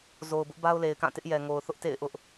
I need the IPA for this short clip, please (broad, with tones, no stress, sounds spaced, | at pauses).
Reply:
z o˨ ʊ̯ b ʊ˦ ʔ b a˦ ʊ̯ l e˨ ɪ̯ k ã˦˨ t ɪ˦ ʔ j ɛ˨ ŋ o˨ ʊ̯ θ ʊ˦ ʔ t ḛ˦˨ ɪ̯ ʔ ʊ˦ ʔ